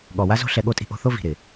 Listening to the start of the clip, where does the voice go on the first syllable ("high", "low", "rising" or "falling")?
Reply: low